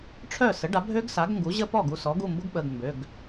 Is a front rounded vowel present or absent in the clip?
present